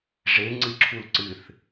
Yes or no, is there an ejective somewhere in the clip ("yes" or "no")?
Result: no